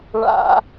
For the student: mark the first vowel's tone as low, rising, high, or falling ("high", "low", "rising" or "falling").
high